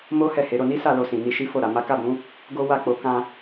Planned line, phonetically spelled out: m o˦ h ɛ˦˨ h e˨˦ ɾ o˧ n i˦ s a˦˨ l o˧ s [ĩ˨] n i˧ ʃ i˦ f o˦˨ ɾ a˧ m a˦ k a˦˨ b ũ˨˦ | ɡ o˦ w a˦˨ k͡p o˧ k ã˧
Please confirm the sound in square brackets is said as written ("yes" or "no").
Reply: yes